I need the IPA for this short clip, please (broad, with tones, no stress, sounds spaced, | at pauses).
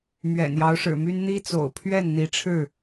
m ɥ ɛ̰˨˩ n j ɑ˨˦ ʊ̯ ʂ ɻ̩˨˩ m y˦ n n̪ i˦ t͡s o̰˨˩ ʊ̯ pʰ ɥ ɛ˥˨ n n̪ i˨˦ ʈ͡ʂʰ ɻ̩˥˨